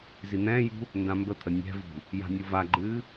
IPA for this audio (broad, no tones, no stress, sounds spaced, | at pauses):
z i n̪ ɛ̃ː j ṳ | n d ã m b ə t̪ʰ ə nʲ ɛ̤ v ṳ | j a̤ nʲ u v a ɡ͡ǃ ɨː